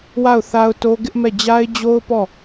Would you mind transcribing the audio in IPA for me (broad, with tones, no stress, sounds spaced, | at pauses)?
w a˦˨ ʊ̯ θ a˦ ʊ̯ t o˦ ɡ ɪ˦ ʔ m ɛ˦˨ d͡ʑ a˦ ɪ̯ d͡ʑ o˦ ʊ̯ p ɔ˦˨